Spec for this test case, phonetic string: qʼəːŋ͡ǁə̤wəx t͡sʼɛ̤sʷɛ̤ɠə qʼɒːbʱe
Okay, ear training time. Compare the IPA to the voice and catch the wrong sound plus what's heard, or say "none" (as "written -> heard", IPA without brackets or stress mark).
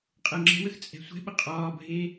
ɠ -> ɓ